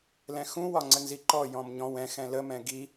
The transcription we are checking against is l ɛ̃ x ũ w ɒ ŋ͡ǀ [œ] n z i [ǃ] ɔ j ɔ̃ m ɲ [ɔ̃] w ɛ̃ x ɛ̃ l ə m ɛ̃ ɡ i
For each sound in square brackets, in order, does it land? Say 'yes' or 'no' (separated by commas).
no, yes, yes